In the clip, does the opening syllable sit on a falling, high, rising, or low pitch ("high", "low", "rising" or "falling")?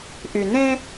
low